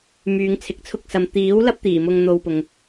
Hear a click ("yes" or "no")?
no